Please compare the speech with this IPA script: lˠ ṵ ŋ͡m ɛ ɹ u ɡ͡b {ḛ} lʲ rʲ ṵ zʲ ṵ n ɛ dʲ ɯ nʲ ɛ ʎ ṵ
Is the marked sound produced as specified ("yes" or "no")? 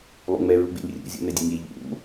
yes